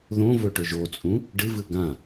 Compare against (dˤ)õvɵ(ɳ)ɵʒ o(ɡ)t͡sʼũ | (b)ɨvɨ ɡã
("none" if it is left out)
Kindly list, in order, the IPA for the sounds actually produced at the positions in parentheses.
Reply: ð, ʈ, none, ɖ

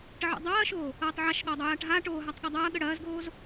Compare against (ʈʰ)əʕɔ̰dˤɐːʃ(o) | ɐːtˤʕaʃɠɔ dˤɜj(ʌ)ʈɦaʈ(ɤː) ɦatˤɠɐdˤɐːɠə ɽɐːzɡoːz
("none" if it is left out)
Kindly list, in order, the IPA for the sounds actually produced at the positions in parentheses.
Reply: ʈ, oː, a, oː

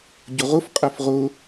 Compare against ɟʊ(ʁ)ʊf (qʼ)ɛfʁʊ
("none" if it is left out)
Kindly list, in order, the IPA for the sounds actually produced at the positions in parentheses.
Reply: ʁ, qʼ

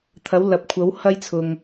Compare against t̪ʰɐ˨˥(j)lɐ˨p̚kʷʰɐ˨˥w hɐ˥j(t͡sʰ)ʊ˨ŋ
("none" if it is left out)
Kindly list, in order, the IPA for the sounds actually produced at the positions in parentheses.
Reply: w, t͡sʰ

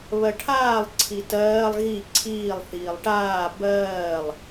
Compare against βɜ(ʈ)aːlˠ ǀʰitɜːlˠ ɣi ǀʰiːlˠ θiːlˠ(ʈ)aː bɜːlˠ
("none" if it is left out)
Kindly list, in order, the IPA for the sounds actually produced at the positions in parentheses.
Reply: ʈʰ, ʈ

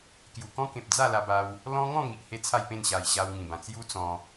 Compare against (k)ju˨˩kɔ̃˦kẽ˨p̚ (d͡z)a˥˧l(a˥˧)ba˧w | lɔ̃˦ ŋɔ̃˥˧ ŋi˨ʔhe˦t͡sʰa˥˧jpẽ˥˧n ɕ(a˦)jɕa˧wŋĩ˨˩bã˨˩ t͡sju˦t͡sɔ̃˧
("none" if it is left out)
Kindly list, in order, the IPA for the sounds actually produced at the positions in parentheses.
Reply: k, d͡z, a˧, a˨˩

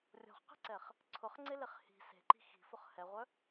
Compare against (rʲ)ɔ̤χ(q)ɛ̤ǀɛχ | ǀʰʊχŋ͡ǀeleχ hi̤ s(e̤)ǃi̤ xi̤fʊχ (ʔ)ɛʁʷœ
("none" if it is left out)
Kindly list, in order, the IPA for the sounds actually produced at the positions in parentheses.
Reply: rʲ, q, e̤, h

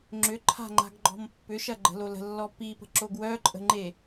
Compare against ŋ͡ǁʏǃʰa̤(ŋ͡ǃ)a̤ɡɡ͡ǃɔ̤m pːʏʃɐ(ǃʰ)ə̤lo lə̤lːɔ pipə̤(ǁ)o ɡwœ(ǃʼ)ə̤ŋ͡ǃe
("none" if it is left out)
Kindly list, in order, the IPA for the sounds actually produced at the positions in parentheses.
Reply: ŋ͡ǃ, ɡ͡ǃ, ǁ, ǃʼ

